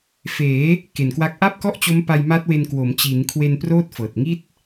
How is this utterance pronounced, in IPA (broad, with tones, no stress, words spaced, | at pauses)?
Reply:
feː˩˦ | ke˨˩nkwa˦˥k̚ ʔa˥˩p̚kɔ˥˩ʔt͡ɕo˦˥m pa˧jma˦˥t̚we˧nkwo˩˦m t͡ɕi˩˦nkʰwe˧n proː˥˩t̚fɤː˨˩t̚ ŋi˥˩t̚